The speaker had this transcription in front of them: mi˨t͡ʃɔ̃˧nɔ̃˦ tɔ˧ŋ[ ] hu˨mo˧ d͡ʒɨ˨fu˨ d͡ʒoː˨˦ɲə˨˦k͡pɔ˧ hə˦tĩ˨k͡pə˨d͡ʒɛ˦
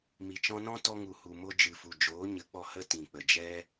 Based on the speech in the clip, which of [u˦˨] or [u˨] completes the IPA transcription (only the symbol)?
u˨